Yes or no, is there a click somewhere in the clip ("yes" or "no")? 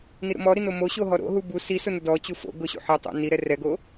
no